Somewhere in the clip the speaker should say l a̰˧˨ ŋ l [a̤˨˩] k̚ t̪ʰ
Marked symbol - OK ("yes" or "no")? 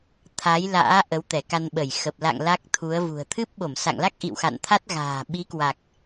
no